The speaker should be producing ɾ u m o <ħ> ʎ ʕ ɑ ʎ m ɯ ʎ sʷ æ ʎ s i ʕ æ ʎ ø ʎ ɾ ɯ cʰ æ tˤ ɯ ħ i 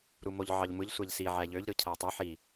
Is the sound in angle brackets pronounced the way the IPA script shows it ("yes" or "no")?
no